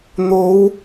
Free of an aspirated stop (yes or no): yes